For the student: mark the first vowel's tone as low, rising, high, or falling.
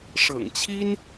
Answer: low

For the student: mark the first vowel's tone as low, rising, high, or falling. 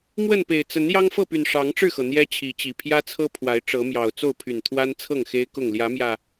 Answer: falling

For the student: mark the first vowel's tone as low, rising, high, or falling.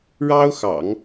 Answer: high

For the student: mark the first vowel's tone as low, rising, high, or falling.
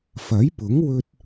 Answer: rising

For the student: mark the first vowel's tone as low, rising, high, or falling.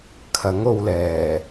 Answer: rising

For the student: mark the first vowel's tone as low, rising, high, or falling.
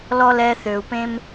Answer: high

